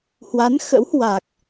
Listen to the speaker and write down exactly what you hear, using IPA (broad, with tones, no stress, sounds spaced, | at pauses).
h w a˨˦ n x ə̰˧˥ w h w a˨˩ k̚